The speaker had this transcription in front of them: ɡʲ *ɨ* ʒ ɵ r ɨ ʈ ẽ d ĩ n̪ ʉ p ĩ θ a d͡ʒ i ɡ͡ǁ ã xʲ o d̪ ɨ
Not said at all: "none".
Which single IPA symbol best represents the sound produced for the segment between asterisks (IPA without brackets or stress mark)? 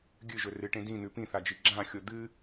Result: ɨ